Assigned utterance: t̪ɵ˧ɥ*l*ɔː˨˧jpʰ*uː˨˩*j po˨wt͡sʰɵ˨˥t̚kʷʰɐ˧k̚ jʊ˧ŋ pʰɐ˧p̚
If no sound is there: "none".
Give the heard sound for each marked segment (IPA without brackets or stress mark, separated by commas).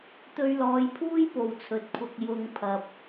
l, uː˥